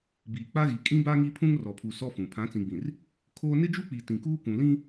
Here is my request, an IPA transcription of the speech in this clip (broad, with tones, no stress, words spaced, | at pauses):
biː˨ k͡pa˦ɣi˨ kʼĩ˦ba˦ŋi˦pʰũ˦ŋ rɔ˨pʰu˨ sɔ˦fũ˨ pʰã˨˦t͡sĩ˨ɡ͡bĩ˨r | kʰoː˦ nɪ˦d͡ʒu˦k͡pi˨ tĩ˨kuː˦kʷũ˨ lĩ˦